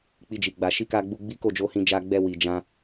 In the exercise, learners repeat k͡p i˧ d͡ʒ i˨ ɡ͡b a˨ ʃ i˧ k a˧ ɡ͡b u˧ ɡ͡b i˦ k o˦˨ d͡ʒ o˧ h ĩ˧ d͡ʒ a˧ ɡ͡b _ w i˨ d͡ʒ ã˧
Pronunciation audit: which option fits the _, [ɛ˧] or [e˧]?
ɛ˧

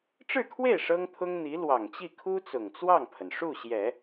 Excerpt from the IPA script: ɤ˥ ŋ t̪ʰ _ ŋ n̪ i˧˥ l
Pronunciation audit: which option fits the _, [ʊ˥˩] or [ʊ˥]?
ʊ˥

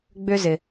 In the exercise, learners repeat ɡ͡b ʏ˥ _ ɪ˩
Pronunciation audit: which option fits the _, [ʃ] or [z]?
z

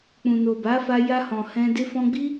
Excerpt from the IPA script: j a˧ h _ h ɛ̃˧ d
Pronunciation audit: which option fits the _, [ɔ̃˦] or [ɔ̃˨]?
ɔ̃˨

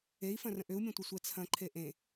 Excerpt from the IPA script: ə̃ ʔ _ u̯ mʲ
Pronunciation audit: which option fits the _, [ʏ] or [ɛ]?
ʏ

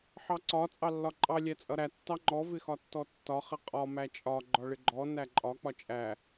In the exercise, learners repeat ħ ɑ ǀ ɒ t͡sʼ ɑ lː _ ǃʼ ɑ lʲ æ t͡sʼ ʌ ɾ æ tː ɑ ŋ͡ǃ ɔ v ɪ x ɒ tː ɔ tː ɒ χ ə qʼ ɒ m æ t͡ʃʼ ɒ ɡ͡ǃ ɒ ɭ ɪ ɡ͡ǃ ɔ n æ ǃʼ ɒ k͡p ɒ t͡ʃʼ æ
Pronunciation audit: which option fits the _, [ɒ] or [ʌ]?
ɒ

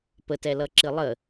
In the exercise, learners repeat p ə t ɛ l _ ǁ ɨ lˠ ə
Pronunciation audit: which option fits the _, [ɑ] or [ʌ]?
ʌ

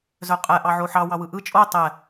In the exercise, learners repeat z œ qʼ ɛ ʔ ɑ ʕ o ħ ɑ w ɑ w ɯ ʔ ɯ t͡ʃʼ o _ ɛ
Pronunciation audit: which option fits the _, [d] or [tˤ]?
tˤ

